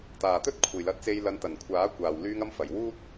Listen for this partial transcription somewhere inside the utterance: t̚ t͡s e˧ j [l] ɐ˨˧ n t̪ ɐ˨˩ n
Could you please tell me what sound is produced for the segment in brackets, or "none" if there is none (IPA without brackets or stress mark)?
l